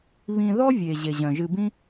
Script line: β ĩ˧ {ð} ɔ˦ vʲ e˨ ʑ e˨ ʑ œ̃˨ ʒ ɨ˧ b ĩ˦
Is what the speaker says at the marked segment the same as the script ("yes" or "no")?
yes